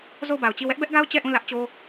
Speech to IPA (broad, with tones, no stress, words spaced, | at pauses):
zo˦˨ʊ̯ba˨ʊ̯t͡ɕi˦˨ wɛ˦ʔbɛ˦ʔɡa˦ʊ̯ t͡ɕɛ˦˨ʔũ˦˨lä˦ʔt͡ɕo˦